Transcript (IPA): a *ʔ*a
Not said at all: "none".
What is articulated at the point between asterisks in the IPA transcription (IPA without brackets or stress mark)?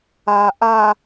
ʔ